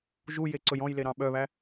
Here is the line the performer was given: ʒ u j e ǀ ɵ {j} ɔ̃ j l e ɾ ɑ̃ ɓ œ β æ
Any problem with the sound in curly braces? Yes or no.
no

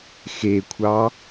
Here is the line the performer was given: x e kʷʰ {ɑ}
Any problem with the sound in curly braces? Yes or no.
no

